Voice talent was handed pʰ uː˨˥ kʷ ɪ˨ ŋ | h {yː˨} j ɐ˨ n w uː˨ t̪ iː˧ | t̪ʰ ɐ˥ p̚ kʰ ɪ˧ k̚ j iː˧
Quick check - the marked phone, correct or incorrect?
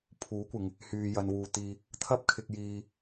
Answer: correct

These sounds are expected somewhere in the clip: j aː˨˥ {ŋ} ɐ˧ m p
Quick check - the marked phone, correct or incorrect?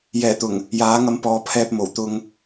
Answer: correct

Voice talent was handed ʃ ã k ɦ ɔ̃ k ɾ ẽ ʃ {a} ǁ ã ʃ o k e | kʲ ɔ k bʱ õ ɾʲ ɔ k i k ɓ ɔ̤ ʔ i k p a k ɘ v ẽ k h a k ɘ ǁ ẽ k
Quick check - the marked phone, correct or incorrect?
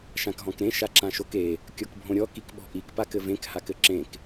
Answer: correct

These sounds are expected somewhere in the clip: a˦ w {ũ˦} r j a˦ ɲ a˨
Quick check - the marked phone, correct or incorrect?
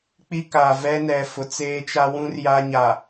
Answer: correct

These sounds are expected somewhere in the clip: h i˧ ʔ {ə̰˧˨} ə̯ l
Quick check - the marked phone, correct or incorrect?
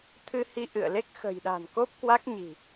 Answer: incorrect: ɨ̰˧˨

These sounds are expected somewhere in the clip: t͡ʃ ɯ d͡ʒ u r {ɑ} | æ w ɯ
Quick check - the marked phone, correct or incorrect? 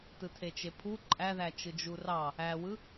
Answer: correct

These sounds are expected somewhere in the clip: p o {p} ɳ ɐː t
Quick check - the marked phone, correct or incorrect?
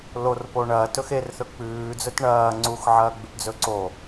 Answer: incorrect: none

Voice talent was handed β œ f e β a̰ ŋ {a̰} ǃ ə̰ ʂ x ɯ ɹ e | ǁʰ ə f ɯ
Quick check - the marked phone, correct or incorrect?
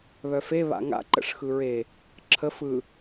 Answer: correct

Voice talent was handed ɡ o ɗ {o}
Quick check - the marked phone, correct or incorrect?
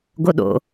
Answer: incorrect: o̰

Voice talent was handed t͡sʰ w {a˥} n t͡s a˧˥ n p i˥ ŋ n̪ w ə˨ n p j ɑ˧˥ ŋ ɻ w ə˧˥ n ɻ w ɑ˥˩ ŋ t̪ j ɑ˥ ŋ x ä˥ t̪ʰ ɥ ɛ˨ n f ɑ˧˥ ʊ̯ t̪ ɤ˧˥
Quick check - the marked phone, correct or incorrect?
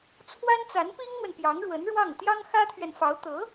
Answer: correct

